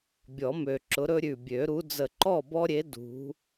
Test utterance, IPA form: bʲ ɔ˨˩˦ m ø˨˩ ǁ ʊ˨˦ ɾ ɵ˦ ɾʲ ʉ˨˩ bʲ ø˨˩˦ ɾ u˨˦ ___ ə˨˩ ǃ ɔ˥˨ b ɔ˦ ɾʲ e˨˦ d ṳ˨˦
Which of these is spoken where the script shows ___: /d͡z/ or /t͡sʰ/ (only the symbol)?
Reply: d͡z